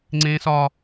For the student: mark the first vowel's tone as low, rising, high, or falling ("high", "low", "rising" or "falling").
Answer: high